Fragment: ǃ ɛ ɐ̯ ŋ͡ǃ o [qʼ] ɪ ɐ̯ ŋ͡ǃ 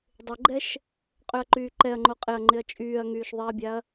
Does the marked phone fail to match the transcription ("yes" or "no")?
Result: no